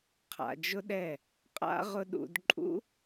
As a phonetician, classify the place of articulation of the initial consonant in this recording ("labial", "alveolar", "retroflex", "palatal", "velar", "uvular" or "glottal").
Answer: uvular